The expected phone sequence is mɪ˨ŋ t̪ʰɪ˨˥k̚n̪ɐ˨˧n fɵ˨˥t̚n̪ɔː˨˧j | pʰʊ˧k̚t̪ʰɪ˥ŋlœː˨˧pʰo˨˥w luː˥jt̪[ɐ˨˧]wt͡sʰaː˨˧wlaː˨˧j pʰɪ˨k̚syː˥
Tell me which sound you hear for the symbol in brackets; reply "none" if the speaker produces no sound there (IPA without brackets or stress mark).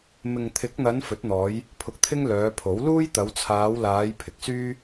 ɐ˨˧